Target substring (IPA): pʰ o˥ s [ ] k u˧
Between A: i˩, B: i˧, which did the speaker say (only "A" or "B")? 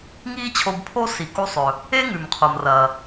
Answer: A